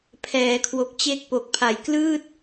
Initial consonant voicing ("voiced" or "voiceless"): voiceless